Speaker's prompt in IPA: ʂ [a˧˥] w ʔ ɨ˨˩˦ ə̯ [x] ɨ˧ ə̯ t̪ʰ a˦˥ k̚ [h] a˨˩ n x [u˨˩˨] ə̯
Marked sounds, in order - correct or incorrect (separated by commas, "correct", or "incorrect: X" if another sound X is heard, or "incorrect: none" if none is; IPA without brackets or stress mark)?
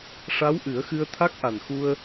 correct, correct, incorrect: ʔ, incorrect: u˧